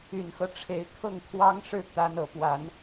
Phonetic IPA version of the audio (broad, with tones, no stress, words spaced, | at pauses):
y˨˩nxɤ˦ ʈ͡ʂʰe˧˥ɪ̯ kʰɤ˥˩ŋkʰwɑ˥ŋ ʂɻ̩˥˩ t̪a˥nɤ˧˥ pwa˨˩˦n